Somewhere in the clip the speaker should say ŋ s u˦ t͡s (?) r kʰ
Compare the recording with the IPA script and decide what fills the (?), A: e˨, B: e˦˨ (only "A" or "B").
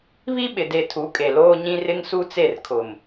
B